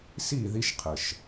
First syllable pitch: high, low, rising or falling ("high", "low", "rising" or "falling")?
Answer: falling